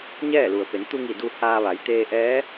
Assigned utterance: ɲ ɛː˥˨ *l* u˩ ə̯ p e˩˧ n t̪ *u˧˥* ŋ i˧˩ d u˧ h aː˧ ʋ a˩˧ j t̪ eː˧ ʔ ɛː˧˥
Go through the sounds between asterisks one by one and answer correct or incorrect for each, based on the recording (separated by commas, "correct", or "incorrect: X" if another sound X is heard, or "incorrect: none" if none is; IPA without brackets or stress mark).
correct, incorrect: u˧